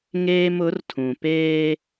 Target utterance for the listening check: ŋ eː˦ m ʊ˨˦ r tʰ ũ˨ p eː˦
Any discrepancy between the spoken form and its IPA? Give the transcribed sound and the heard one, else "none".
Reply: none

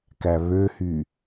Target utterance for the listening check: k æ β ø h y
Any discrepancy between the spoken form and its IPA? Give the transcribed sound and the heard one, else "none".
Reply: none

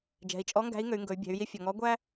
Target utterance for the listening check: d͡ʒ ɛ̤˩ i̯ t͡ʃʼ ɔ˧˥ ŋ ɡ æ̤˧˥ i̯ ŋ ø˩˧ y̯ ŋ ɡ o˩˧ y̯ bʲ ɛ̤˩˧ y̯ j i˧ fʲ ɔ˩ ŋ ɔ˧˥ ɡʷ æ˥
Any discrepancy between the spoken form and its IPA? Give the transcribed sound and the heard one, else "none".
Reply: o˩˧ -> ɵ˩˧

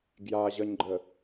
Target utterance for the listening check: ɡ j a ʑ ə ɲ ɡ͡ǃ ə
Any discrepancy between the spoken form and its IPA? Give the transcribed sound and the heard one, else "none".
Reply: none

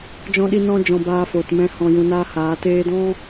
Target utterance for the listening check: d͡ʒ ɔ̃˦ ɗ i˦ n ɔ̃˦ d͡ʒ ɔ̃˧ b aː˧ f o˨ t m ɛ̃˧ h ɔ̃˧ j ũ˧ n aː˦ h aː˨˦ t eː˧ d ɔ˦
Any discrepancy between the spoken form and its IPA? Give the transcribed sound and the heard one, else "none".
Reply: ɔ˦ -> ɔ̃˦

